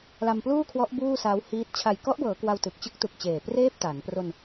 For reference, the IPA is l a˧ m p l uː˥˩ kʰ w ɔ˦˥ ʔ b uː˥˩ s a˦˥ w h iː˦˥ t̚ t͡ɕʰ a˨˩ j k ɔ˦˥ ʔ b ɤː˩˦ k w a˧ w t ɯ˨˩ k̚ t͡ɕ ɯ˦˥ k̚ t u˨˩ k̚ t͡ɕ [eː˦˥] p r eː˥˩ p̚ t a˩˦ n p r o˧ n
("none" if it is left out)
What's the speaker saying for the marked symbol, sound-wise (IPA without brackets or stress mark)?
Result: eː˨˩